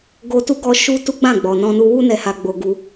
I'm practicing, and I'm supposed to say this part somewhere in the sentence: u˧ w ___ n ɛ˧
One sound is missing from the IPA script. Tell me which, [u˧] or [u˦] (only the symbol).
u˦